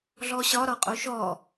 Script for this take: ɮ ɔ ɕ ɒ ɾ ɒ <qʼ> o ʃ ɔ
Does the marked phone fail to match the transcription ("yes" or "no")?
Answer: no